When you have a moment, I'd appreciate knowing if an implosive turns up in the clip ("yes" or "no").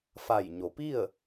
no